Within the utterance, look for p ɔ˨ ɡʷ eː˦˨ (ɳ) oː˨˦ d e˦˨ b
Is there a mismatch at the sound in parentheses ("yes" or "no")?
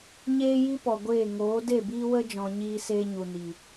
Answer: yes